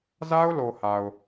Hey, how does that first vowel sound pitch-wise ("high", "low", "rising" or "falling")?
high